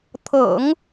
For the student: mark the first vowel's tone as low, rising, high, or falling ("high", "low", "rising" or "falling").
low